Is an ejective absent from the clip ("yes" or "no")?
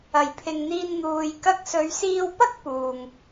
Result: yes